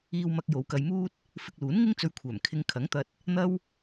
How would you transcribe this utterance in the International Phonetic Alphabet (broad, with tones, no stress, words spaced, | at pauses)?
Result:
iː˧wmɐ˧k̚ jo˨˧wkɐ˧jmuː˥t̚ | fɪ˧k̚luː˨˥nŋɪ˥ŋ t͡sɵ˧ɥkʷʰœː˨˩m kʰɪ˧ŋkʰɐ˨˥ŋt̪ɐ˧t̚ | n̪ɐ˥w